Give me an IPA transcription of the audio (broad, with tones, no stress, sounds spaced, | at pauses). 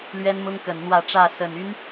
l ɥ ɛ˦ n m ʊ˦ ŋ k ə˨˩ n n̪ w ä˥˨ ʈ͡ʂ ä˥˨ s ə˨˩ n y˦ n